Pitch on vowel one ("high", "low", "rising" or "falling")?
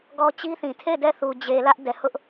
high